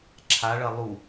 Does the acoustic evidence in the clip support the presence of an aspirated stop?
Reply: yes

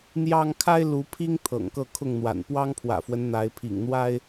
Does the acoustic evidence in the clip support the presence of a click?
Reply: no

